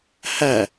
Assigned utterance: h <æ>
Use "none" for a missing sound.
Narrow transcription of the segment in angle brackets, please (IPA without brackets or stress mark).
æ